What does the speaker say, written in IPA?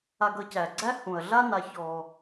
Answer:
a˨ɡʌ˨cæ˩ɡ͡ǀæ˦ hũ˩ɐ̯ɮa˦ na˨çɔ˨

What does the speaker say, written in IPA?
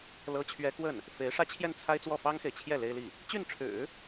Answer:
lɤ˥t͡ɕʰɥɛ˥ kwə˥˩n | fe˧˥ɪ̯ ʂä˥t͡ɕʰjɛ˥˩nt͡sʰa˥ɪ̯t͡swɔ˥˩ fɑ˥ŋxe˨ɪ̯t͡ɕʰjɛ˥˩ le˥ɪ̯li˥˩ | t͡ɕy˥˩nʈ͡ʂʰɻ̩˨˩˦

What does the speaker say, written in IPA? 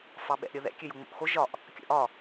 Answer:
fɑɓɛ̰ʔɾʲəðɛ̰ kʲøjuŋ͡mo̰ʔxo ʒɒʔ | kʲə̰ʔɒ

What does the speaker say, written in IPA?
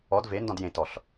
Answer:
ɔd vendɔ̃d jẽtɔɬ

